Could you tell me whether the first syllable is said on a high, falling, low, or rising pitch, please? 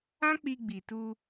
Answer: high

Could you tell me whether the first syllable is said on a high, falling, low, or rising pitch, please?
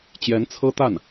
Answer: rising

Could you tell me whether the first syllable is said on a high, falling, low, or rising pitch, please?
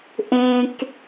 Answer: high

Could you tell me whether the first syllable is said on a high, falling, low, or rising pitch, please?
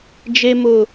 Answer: high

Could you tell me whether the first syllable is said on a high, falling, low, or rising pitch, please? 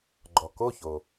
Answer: low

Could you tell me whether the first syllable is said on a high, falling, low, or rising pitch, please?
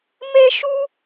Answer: high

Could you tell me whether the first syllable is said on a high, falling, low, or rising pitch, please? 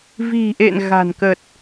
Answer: low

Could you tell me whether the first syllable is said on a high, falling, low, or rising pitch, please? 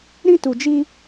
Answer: high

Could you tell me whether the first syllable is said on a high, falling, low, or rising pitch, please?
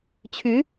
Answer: rising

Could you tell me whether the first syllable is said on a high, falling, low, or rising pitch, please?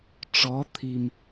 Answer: rising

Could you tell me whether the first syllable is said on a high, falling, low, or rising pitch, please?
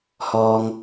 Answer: high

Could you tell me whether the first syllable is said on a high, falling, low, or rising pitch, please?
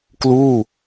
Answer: falling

